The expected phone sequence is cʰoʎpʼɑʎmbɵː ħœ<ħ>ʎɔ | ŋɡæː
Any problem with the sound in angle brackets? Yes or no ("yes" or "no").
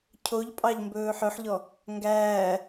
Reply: no